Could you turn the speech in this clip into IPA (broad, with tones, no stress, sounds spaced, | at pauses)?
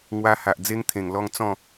ŋ w a˧ h a˨ ʔ d͡z e˦ ŋ t̪ʰ ẽ˨˩ ŋ l ɔ˥˧ ŋ t͡s ɔ̃˥˧